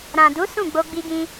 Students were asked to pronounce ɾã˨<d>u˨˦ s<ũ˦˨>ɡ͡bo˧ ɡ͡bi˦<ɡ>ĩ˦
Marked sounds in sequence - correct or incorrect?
correct, correct, correct

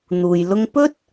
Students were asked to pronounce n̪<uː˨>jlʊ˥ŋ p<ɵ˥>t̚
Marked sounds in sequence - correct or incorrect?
correct, correct

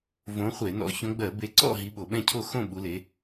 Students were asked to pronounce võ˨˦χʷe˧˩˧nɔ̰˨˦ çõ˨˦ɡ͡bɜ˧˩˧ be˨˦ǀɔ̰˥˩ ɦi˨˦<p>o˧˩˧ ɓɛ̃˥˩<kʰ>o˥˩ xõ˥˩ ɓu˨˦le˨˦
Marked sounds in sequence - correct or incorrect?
incorrect: ɓ, incorrect: cʰ

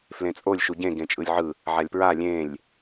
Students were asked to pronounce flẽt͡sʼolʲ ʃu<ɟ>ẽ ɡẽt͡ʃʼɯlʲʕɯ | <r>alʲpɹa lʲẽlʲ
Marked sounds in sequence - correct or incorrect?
correct, incorrect: ʕ

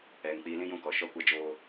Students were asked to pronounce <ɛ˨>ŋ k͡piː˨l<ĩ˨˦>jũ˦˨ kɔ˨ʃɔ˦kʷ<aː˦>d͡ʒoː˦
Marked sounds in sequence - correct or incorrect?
correct, incorrect: ĩ˦, incorrect: a˦

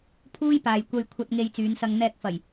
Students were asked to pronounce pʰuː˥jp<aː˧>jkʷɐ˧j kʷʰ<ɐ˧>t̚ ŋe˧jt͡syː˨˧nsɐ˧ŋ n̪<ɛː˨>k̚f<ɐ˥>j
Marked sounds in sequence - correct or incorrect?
incorrect: aː˨, correct, incorrect: ɛː˧, incorrect: ɐ˨˩

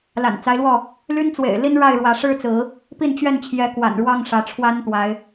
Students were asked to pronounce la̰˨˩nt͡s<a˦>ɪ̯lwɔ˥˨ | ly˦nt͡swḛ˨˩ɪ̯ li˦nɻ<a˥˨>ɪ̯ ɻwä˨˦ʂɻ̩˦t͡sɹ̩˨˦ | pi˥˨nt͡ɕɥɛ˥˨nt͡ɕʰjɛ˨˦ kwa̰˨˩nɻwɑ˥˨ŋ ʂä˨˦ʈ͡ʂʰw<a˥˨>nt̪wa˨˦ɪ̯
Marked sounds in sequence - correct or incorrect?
correct, correct, incorrect: a˦

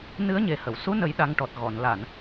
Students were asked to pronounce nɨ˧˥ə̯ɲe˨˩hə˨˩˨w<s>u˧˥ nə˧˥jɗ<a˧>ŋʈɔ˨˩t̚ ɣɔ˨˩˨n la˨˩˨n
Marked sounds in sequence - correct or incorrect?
correct, correct

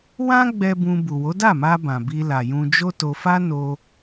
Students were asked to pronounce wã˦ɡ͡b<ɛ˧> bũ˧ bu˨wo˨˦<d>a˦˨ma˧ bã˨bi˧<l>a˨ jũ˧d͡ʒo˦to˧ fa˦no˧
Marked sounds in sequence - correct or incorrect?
correct, correct, correct

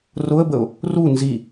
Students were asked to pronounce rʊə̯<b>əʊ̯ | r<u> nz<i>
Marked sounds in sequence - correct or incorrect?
correct, correct, correct

